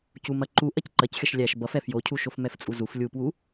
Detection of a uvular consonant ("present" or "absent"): absent